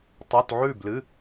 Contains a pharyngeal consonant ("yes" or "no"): yes